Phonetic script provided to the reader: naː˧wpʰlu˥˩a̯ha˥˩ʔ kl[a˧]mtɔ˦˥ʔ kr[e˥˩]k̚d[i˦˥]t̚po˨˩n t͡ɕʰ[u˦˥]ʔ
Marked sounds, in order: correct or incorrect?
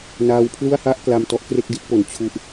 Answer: correct, correct, correct, correct

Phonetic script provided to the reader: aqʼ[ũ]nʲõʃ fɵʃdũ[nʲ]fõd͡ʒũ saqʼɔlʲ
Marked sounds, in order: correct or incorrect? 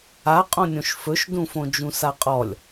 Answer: incorrect: õ, incorrect: none

